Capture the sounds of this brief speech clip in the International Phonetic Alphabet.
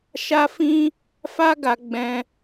ʃa˧fĩ˧ | fa˦ɡa˧ ɡ͡bɛ̃˧

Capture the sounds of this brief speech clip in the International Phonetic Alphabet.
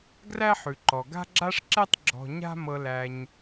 ɡræ˦ħʉ˩ǃɔ˩ ɡa̤˦ɡ͡ǁa˦ʂ ǁɛ˦tˤ ɡ͡ǁɔ̤˨ɲa̤˦ mɤ˨læ˨ɲ

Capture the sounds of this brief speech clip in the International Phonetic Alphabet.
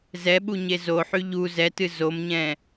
zɛɓuɲe zoħy ʎu zɛtɨ zomɲɛ̃

